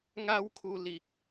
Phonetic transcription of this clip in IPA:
ŋa˦wkʰu˧ li˨k̚

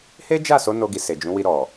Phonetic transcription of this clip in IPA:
he˦d͡ʒa˦˨so˨˦ no˧ɡi˨se˨ d͡ʒũ˨˦ wi˧ɾɔ˨

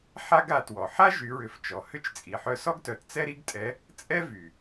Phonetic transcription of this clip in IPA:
ħa˥ɡa˩˧ twɔ˩ ħa˥ʒy˩˧ɹʏ˩˧f t͡ʃɔ˩hʏ˥t͡ʃ t͡sʼi˩ħœ˧ sɔ˥ɡtœ˩˧t t͡sɛ˥ɾi˥ɡtʼɛ˧˥ | t͡sʼɛ˥ vy˩

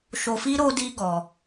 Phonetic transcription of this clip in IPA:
ʃo˧fi˦ ɾo˦di˦ ɡɔ˧

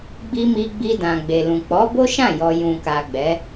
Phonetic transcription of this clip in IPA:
ɡ͡bi˧ mi˧ɡ͡bi˧dã˨ ɡ͡be˨lũ˨ k͡pɔ˨˦ bo˦ʃã˦˨jɔ˨ jũ˨ka˨ ɡ͡bɛ˨˦

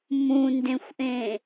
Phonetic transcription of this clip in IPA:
mũndẽxʷʔẽ

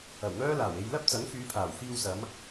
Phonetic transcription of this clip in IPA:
ɐ˨˩wŋœː˥ laː˨˩we˧j lɐ˥p̚t͡sɐ˨˥ŋfyː˨˧pʰaː˨˩w fiː˧wsɐ˨˧m

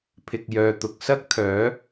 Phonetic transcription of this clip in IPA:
pʰɪ˨k̚jœː˨t̪ʊ˨k̚ sɐ˥k̚t̪ʰœː˨˥

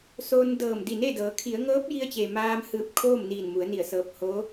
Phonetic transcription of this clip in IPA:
soː˧ndɤː˧˩m di˧˩ne˥˨dɤː˩˧ kʰi˩˧ə̯ŋɤː˧˥p̚ji˧ə̯t͡ɕe˩ maː˧mhɯː˧˩p̚ kʰoː˥˨mniː˧˩nmu˩˧ə̯ni˧˩ə̯ sɤː˧˩p̚hoː˧˥

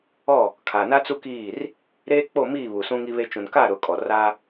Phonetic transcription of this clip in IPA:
ɔ˦˨ | kʰa˨na˦t͡su˦kiː˦˨r | ɾeː˦k͡po˦˨ miː˦˨βu˨ sũ˦ŋi˦βe˦ t͡ʃũ˨nka˦˨ɾʊ˨kʼɔ˨ ra˦

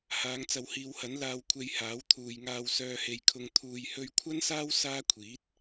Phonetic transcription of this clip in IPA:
haː˨˧ŋt͡sɐ˨whiː˨˧whɐ˨˥n laː˨wkʷʰe˨j haː˨˥wt̪ʰuː˨jŋaː˧w sœː˨he˨jkʰʊ˨˧ŋ t̪ʰuː˨jhɵ˧ɥkʷʰɐ˥nsaː˥w saː˥ kʷʰiː˨˥t̚

